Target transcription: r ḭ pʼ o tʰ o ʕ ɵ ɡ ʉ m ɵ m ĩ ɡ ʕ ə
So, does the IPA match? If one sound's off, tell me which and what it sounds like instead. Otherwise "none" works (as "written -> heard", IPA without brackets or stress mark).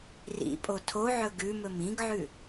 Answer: ə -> ʉ